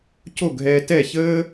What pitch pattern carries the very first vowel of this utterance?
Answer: falling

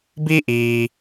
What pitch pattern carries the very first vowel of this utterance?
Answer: high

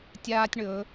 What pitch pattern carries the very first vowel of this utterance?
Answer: high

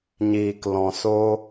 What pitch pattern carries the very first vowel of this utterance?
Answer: low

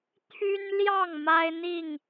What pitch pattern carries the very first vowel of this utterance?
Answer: high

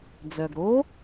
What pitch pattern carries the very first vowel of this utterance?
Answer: low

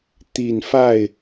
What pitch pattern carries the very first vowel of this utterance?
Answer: low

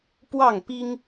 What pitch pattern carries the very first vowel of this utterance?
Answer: falling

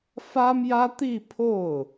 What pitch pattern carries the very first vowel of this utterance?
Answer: high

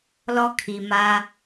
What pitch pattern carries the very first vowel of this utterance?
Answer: high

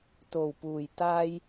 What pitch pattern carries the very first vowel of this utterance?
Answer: low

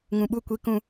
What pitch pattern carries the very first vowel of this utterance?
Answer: low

